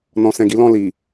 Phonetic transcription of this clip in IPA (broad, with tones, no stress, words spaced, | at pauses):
nɔ̃˧sɛ̃˧ɡi˦lɔ̃˦˨ li˨